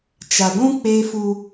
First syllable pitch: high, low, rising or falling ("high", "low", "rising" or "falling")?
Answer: low